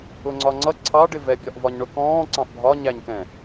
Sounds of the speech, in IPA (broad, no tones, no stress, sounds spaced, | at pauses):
ʊ ŋ͡ǀ ɒ ŋ͡ǀ ʌ ǀʰ ɑ ɖ ɪ v ɛ bʲ ɒ ʔ v ɒ ɲ ɳ ʊ k ɔ̃ː ǀ ɑ̃ ʔ bʱ ɒ ɲ æ ɲ k ɛ̃